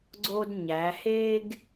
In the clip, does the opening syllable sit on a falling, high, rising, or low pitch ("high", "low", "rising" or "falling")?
high